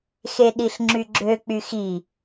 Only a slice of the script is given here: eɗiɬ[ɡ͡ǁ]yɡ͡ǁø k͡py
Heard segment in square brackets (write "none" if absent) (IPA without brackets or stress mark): ŋ͡ǁ